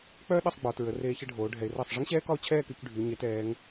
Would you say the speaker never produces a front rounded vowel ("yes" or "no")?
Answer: no